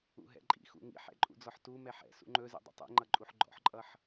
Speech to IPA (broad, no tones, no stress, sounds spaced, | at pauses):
ṵ ɦ ɛ̰ ǃʼ ḭ x ṵ ŋ ḭ ħ ɛ̰ ǃʼ ṵ d͡z ɔ ħ t u m ɛ ħ ɛ̰ s ṵ ŋ͡ǃ ɵ z ḭ dˤ ṵ tˤ ḭ ŋ͡ǃ ʌ ǃʼ u ħ ɡ͡ǃ ɔ̰ ħ ǃʼ ʌ ħ